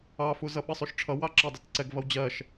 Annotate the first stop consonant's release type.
implosive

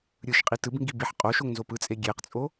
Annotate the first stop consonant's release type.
ejective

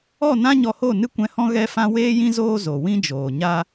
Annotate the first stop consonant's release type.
plain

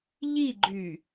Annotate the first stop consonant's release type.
click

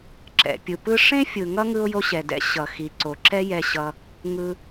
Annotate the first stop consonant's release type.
click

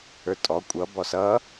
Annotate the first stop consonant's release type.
ejective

